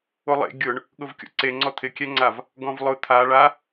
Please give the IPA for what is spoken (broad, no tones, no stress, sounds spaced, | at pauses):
o lˠ ḛ ɡʲ ʊ ɳ | ɠ ʊ v kʲ o̰ ǀ e ŋ͡ǀ ɔ t̪ʰ ɪ kʲ ɛ ŋ͡ǀ a v | ɡ ɔ̃ v lˠ ʊ t̪ʰ a ɭ a